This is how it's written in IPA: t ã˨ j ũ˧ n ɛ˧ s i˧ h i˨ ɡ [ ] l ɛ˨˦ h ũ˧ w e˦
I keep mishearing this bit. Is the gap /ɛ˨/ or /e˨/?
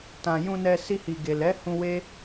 e˨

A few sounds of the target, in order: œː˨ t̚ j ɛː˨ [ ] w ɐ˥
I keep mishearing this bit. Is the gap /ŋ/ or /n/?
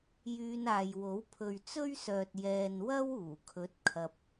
n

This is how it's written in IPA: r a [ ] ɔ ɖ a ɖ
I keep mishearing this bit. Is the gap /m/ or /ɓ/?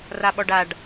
ɓ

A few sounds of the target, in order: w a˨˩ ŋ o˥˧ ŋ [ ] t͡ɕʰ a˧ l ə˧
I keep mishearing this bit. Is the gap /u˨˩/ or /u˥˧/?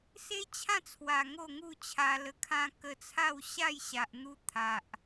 u˥˧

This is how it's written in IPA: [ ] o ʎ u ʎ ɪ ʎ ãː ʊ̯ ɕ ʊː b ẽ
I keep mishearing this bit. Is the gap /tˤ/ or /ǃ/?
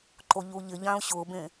ǃ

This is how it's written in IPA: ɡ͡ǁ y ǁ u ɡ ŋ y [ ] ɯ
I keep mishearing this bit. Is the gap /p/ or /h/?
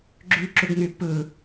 p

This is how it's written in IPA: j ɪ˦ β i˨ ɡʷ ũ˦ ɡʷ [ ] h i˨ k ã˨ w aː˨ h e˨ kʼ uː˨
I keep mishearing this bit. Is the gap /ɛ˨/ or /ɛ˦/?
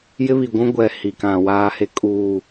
ɛ˨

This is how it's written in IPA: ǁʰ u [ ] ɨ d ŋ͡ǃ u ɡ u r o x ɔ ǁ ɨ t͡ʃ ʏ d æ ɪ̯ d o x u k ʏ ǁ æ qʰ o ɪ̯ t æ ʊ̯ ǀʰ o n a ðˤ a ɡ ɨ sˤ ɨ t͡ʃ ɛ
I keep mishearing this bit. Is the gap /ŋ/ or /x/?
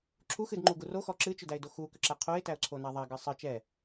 x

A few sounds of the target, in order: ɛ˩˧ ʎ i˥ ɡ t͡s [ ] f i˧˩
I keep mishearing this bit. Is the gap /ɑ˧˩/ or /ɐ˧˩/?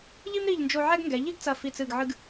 ɐ˧˩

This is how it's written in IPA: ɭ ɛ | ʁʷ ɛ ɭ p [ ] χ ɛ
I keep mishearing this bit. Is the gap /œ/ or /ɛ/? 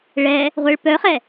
œ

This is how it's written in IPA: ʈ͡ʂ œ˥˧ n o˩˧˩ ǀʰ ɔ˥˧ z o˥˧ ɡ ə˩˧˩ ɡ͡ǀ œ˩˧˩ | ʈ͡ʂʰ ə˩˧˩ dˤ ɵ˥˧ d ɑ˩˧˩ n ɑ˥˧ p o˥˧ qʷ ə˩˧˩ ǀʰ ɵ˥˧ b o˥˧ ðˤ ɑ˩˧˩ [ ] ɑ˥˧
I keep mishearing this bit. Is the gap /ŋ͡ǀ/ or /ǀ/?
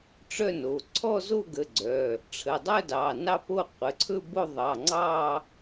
ŋ͡ǀ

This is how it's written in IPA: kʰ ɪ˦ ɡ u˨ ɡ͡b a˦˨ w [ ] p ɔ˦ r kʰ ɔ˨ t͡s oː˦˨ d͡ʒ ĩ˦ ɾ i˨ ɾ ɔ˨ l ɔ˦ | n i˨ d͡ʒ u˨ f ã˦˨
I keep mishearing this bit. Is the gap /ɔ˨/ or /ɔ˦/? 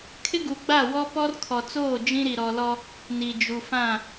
ɔ˦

